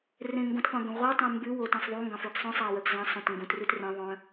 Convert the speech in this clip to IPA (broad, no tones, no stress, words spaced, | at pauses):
rẽŋɡõtqʷœ̃ ɡœ̃ʁʷœtˤẽ mbʉwo tẽsˤðˤuŋɡɑ̃ fʉɡsˤœ̃sˤæ wœɡzɑ̃sˤõt ŋɡũt rʉtrẽðˤœ̃